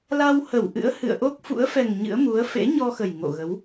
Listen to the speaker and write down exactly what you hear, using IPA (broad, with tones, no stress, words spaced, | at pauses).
la˧whə˧˩w ʔɨ̰˧˥ə̯hɨ̰˧˨ə̯ʔo˦˥k̚fṵ˧˥ə̯ fɛ˨˩ŋ ɲɨ̰˧˥ə̯mu˨˦ə̯ fḛ˧˥ɲɔ˧xə˨˩j ŋo̰˧˨ɣə˨˦w